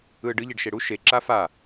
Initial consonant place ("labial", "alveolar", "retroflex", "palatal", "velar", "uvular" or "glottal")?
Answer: retroflex